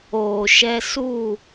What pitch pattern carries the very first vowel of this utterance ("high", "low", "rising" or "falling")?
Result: low